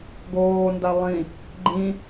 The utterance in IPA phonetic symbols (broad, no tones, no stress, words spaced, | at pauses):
ɡoːnda lˠĩ | ɡ͡ǃĩ